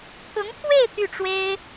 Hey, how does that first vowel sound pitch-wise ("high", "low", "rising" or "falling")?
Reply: rising